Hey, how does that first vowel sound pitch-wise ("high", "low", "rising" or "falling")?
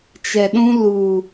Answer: low